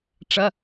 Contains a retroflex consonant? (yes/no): yes